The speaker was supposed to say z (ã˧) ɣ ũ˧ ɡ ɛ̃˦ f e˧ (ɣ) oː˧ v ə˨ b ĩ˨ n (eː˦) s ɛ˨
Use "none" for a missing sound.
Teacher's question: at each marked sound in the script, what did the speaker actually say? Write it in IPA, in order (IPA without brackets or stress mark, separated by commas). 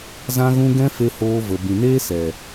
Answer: ã˧, h, eː˦